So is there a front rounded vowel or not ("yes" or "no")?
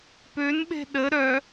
yes